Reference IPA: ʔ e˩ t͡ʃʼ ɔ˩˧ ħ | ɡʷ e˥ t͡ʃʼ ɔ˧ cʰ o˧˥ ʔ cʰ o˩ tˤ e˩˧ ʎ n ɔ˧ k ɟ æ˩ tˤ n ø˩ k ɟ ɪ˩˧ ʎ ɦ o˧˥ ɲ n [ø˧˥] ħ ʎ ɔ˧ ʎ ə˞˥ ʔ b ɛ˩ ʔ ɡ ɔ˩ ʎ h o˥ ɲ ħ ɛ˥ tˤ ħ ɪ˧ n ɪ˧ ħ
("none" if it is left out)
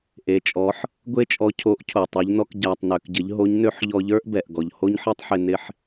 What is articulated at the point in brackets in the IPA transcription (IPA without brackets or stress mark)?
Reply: ø˧˥